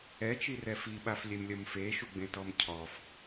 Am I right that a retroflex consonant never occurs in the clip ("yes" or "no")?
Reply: yes